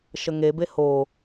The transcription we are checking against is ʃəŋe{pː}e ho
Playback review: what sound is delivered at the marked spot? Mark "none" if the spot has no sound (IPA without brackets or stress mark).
b